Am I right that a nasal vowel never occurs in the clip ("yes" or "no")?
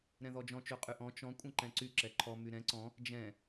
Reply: no